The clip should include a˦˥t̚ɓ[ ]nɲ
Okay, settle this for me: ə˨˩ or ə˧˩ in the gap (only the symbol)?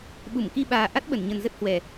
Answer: ə˧˩